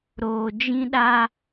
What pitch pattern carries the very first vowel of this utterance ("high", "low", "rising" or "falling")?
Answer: low